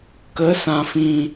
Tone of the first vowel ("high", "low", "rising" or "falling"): rising